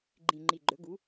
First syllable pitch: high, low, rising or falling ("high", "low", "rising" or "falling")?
low